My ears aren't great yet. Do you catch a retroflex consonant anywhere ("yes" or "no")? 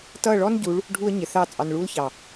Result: yes